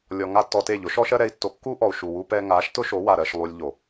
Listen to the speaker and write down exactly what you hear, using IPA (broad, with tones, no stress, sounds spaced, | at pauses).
lʲ ɔ˧ ŋ a˦ tː ɔ˧ t e˦˨ ʎ ʊ˨˦ ʃ ɔ˦ ʃ ɜ˦ ɾ ɛ˧ i̯ tː o˧ kː u˦ ʔ ɔ˨ u̯ ʃ u˨ w u˧ p ɛ˧ ŋ a˨˦ ʃ t ʊ˦ ʃ o˨˦ w a˨ ɾ ɜ˨ ʃ lˠ u˧ lʲ ʎ o˨